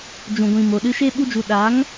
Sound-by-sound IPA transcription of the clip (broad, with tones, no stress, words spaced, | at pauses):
d͡ʒũ˨ɡʷĩ˨mo˨ɗɨ˧ ʃe˦ ɓu˦d͡ʒu˧ ɗa˨˦ŋ